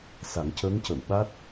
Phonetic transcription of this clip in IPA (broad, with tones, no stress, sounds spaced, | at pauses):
s a˨˩˦ ŋ c əː˧˥ ŋ c ə˨˩˨ w ɓ a˦˥ t̚